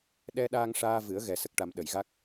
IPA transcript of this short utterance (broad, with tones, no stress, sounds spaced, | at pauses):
ɗ ɛ˧ ɗ aː˧ ŋ ʂ aː˧ v ɨ˨˩˦ ə̯ ɣ ɛ˨˩˦ s ə˦˥ k̚ ʈ a˨˩˦ m ɗ ə˨˩˨ j ɣ a˦˥ k̚